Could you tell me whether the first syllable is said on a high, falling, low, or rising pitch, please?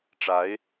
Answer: rising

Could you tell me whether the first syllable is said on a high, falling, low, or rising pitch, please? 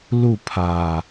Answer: falling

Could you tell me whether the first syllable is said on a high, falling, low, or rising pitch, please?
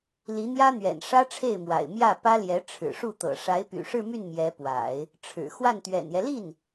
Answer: rising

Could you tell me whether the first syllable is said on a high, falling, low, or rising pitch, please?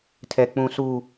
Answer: low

